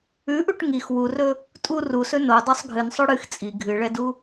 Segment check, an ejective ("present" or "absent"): present